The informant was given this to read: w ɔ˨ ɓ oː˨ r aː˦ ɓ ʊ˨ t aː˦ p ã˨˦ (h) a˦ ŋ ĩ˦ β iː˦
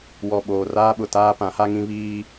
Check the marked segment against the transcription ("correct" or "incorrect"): correct